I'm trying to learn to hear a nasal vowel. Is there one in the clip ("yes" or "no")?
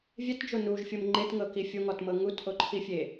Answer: no